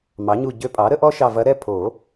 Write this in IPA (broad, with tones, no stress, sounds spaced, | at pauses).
m ɑ˩˥ ɲ u˦˨ ɟ ø˧˥ pʼ ɑ˩˥ ɾ ə˩˥ ʔ ɔ˥ ʃ ɑ˦˨ v ɐ˧˥ ɾ ɛ˥ pʰ o˨˩˦